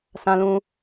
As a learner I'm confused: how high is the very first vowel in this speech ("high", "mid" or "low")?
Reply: low